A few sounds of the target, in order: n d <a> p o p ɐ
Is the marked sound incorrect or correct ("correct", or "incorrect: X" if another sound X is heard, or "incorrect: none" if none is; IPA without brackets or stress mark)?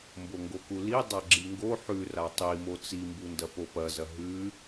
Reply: incorrect: ɐ